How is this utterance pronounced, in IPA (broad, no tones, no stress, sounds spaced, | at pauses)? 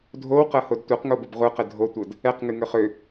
dʱ o w q ɤ h o d tʷ ɤ q ŋ o b ə b ʁʷ ɯ q ə dʱ o tʷ ɤ d | ɛ q ŋ ɨ ŋ ø χ ø